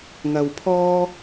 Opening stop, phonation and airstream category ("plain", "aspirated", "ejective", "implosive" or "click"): aspirated